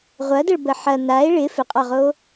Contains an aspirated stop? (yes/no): no